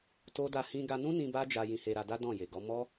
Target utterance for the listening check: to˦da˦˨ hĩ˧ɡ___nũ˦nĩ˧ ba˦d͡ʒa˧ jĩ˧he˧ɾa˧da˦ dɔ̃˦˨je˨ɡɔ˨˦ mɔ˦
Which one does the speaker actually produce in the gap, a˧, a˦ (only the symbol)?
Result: a˧